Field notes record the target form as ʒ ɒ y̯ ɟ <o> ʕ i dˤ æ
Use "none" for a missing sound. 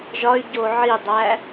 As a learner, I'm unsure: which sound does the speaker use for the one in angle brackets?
o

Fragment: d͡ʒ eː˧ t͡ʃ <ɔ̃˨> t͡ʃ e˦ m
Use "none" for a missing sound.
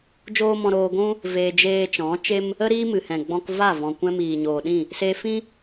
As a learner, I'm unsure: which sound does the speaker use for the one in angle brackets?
ɔ̃˨˦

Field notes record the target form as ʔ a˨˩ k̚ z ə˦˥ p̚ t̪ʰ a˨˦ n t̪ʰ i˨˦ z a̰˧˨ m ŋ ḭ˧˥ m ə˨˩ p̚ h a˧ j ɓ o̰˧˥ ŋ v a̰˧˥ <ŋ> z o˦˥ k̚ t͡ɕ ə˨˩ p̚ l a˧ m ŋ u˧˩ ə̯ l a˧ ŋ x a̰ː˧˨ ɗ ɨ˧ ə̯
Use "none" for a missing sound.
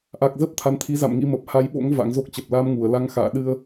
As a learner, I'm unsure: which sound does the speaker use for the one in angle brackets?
ŋ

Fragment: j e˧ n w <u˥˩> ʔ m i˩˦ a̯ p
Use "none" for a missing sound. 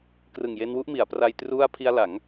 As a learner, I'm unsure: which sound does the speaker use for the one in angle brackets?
u˥˩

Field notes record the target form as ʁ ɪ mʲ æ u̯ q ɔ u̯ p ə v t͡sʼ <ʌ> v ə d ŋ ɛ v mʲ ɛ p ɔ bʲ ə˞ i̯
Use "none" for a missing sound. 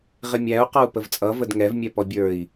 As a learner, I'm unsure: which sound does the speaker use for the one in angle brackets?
ʌ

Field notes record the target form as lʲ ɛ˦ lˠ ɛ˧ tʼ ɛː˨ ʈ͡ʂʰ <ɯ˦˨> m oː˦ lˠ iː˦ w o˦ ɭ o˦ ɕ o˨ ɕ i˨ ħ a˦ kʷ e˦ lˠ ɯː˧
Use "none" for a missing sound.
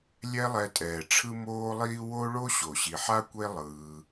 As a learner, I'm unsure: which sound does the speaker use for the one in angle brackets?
ɯ˦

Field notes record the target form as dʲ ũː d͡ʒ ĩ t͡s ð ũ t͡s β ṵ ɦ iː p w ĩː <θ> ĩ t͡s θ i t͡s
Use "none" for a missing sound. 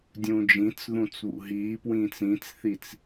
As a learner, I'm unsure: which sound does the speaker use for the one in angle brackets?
t͡s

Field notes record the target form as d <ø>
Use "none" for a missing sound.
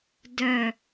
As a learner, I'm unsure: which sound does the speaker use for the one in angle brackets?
œ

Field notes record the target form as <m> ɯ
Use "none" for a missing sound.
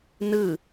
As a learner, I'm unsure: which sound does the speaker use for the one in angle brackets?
n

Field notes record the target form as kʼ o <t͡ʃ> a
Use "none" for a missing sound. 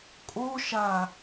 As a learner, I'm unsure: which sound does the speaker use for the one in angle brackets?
ʃ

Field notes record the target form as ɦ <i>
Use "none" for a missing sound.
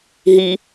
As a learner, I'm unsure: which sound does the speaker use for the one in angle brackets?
i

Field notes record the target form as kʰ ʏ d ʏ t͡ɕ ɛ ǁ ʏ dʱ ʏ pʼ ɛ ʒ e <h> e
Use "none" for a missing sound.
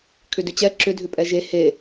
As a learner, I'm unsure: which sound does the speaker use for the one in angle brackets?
h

